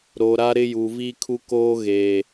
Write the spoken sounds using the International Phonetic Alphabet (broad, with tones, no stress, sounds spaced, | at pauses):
ɾ o˨ ɾ a˦ ɾ ɪ˦ j u˨ v i˦ kʰ u˦ k oː˦ ɣ eː˨